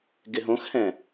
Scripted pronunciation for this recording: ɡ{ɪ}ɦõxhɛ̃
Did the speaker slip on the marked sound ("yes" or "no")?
no